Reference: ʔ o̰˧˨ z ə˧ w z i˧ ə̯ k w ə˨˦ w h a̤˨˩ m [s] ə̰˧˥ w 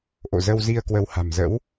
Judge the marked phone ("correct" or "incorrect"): incorrect